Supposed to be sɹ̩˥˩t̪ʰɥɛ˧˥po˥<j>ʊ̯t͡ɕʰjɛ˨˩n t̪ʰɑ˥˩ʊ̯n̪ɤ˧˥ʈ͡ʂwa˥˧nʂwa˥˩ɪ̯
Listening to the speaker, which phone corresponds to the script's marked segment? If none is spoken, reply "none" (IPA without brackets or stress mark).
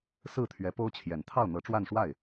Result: none